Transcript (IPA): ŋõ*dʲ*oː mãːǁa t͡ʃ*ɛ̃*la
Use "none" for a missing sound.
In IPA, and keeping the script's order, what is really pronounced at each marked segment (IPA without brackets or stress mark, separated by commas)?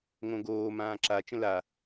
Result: ɡ, ə̃